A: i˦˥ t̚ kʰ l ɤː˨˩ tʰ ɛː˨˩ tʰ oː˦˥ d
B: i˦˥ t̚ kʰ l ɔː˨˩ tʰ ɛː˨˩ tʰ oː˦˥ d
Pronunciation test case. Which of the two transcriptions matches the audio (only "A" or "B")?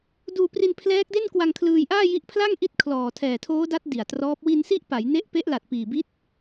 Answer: B